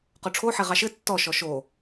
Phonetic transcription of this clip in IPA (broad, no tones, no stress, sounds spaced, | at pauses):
q o ʈ͡ʂʰ o ħ e ʁ ɑ ʃ ɘ tː ɔ ʃ ɔ ʃ o